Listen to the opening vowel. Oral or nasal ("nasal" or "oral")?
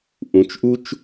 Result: nasal